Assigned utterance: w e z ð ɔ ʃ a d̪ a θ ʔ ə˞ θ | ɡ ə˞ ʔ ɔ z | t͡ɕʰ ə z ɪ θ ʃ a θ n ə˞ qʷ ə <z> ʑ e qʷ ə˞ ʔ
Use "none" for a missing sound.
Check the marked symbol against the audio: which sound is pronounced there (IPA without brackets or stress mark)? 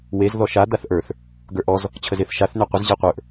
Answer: z